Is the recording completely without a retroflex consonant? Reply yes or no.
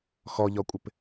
yes